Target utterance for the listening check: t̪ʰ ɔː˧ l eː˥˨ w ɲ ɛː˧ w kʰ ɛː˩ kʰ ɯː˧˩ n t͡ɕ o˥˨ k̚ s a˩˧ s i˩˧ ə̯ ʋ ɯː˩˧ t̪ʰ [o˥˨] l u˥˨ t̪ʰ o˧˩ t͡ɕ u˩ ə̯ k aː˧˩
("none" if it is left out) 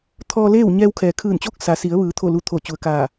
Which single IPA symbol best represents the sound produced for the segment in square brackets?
o˥˨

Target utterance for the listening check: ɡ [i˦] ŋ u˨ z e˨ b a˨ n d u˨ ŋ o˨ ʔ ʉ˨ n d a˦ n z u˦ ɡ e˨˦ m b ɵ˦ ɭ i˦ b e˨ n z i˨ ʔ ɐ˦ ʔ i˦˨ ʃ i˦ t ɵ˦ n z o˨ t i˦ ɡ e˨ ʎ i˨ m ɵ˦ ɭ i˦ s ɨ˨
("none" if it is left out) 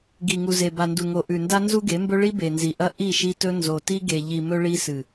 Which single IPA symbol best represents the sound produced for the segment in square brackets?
i˨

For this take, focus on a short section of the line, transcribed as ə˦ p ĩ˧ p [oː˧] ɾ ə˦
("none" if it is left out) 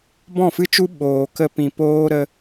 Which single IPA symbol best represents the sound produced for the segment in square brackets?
oː˦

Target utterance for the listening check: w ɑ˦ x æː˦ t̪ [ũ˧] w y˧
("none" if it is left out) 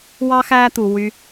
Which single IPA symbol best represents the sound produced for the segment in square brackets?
u˧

